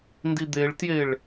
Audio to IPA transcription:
n d i d̪ e ɭ t j e ɭ

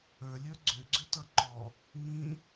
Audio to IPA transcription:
ə˞ lʲ ə˞ ɡ͡ǀ ʏ ɡ͡ǀ ʏ t ʌ ǃ ɔ | ŋ ĩ

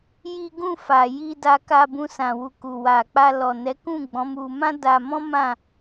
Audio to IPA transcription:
j i˦ ɡ ũ˦˨ f a˨ j i˧ d a˧ k a˧ b ũ˧ s ã˨ w u˨ k u˨ w a˨ k͡p a˧ l ɔ˨ n ɛ˨˦ k ũ˦˨ ɡ͡b ɔ̃˨˦ m u˧ m ã˦ d a˧ m ɔ̃˦ m ã˦˨

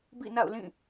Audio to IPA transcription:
b ḭ˦˨ n a̰˦˨ ʊ̯ l ĩ˦˨

